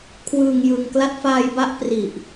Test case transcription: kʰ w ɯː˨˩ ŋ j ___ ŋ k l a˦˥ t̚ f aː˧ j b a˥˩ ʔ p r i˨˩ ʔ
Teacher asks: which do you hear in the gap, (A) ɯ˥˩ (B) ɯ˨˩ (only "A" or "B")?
B